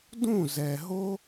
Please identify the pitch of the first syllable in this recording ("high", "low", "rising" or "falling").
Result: falling